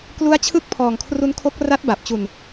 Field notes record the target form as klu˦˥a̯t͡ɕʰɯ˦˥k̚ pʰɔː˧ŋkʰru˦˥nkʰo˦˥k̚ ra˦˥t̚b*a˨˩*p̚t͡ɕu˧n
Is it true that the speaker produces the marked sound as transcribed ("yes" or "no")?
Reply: yes